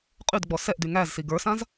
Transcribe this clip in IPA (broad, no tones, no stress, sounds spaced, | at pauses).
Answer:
qʼ y d ɡ͡b ɔ s ɛ ʔ d y ŋ æ z s i ɡ ə˞ s ã z